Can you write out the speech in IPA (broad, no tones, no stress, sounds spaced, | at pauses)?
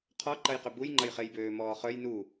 qʰ ɔ ǃ ɐ j q ʏ b u j ŋ͡ǃ ɐ j χ e j b øː m ɔː χ œ j n u